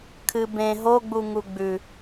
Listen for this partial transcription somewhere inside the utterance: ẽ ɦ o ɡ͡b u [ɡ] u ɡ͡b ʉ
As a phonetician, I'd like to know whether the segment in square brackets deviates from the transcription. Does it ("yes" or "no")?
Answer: yes